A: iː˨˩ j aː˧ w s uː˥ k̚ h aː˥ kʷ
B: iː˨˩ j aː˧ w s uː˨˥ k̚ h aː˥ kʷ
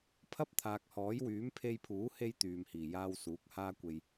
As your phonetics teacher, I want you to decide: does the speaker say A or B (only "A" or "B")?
B